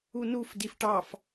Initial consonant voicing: voiced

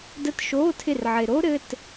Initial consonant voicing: voiced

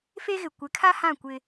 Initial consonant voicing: voiceless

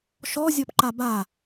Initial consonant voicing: voiceless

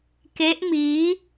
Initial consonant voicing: voiceless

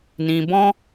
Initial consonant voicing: voiced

